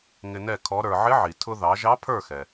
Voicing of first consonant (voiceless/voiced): voiced